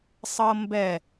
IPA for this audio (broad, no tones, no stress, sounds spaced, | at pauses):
sˤ ɤ m b ɛ